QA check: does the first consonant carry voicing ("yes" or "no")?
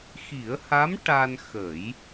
no